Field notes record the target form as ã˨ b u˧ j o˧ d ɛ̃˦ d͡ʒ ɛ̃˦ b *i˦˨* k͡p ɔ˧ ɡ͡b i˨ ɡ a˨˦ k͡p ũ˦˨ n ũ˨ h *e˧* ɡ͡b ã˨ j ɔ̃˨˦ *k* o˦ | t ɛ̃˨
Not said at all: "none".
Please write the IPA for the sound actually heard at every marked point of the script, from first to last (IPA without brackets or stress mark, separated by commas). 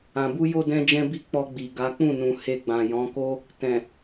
i˦˨, e˧, k